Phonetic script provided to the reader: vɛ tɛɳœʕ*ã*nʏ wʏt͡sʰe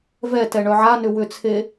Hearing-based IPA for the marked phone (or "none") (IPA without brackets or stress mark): a